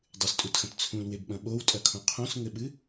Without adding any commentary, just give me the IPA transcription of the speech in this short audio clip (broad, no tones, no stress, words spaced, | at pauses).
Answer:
dˤɨstʼutxɐ̃t t͡sʰũlwebɓɐ̃ ɓowtʼɐkʰõ qʰõsŋɘɓɨ